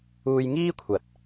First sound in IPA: uː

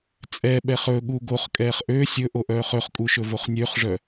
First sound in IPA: t͡sʼ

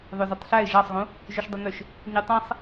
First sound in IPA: ðˤ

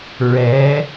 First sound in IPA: ɹ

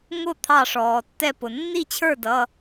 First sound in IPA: ŋ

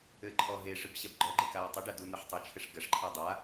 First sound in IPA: ɘ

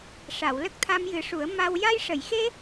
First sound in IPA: ʂ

